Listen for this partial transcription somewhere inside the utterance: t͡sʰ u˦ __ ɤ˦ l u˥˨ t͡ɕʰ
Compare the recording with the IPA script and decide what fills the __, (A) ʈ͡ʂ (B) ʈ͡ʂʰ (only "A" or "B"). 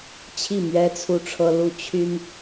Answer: B